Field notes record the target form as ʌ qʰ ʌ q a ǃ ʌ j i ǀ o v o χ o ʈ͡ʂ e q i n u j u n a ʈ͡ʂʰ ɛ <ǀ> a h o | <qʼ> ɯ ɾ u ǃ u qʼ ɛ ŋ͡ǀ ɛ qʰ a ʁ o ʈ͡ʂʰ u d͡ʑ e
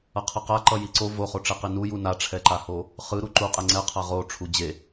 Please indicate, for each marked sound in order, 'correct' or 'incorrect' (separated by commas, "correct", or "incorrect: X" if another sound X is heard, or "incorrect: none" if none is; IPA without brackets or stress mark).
incorrect: ǃ, incorrect: χ